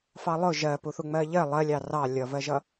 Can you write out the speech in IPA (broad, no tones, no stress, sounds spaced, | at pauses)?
f ɑ lˠ ʊ ʒ ɜ p u θ u ŋ͡m ɜ ʎ ɜ lˠ ɜ lʲ ɑ r ɑ lʲ ʌ v ɜ ʒ ʌ